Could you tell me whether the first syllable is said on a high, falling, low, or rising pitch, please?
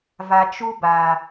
low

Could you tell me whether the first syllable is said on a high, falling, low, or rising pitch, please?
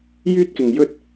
high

